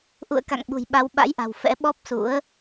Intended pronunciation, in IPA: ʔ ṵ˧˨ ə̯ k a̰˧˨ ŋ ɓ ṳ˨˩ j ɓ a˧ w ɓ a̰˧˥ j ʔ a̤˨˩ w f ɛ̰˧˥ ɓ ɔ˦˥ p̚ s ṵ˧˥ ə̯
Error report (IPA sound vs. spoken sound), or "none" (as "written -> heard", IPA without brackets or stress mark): none